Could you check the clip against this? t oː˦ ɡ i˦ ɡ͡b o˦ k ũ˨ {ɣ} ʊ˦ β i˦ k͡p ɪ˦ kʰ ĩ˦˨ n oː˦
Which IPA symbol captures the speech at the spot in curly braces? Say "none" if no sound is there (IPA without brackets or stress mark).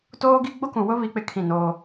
w